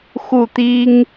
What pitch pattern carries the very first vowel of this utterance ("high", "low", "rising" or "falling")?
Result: falling